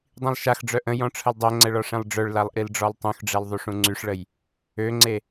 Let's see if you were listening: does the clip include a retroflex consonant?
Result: yes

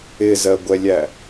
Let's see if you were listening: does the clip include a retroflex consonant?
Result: no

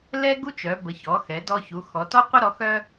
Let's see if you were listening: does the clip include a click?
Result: no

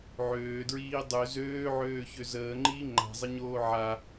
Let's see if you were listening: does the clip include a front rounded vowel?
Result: yes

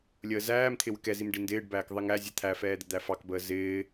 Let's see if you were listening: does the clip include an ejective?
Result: no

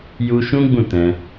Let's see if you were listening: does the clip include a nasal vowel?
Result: yes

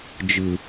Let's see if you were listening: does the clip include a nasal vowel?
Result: no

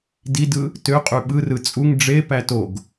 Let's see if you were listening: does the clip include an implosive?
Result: yes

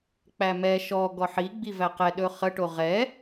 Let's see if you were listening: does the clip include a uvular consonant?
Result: yes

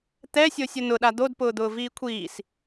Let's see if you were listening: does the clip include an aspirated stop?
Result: yes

